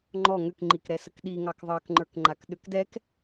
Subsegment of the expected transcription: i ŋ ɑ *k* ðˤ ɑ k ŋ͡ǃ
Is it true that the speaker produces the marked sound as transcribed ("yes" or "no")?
yes